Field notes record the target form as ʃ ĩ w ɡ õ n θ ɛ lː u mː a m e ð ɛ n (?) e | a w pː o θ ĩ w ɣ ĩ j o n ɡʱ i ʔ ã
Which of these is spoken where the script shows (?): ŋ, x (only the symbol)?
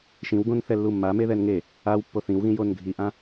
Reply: ŋ